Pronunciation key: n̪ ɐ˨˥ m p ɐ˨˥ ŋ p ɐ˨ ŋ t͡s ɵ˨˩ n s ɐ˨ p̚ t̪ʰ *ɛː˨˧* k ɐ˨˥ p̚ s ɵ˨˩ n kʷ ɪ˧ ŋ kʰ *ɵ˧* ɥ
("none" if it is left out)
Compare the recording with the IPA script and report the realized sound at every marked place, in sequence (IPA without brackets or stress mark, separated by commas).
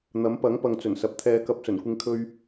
ɛː˨˧, ɵ˧